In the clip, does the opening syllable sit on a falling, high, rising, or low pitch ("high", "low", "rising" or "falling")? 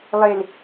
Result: low